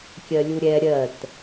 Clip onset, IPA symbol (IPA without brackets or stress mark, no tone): kʲ